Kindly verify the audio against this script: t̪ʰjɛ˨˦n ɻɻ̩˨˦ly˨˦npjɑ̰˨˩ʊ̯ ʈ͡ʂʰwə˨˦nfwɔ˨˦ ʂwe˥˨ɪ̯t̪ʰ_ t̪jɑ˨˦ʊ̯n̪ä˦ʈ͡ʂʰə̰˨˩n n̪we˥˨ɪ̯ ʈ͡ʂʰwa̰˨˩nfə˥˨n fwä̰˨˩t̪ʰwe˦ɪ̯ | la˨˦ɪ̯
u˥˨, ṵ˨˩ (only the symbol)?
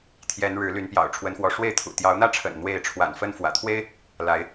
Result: ṵ˨˩